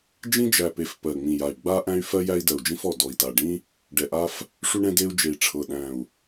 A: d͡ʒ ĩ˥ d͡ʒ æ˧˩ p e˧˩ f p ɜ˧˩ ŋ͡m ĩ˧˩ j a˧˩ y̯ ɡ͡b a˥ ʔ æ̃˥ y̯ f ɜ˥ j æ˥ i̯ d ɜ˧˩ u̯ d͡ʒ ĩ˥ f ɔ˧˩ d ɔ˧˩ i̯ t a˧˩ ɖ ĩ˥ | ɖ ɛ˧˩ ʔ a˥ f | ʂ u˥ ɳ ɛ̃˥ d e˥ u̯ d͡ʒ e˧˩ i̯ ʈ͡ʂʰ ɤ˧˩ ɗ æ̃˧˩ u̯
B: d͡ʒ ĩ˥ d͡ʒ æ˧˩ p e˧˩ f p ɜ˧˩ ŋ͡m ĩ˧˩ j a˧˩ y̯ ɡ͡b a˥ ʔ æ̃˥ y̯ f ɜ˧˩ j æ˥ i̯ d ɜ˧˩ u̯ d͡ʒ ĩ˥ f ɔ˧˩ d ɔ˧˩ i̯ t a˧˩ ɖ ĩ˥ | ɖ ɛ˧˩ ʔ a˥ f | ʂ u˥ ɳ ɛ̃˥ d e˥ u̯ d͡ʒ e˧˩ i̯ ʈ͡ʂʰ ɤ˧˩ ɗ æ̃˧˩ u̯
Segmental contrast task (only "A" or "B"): A